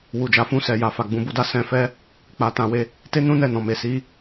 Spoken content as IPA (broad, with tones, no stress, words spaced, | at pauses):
wu˨d͡ʒa˨ fũ˧ sɛ˨ja˨fa˨ ɡ͡bũ˨bu˧da˧ sɛ̃˧fɛ˦ | k͡pa˧tã˧we˧ | te˦nũ˦nɛ˦˨nɔ̃˨ me˨si˨˦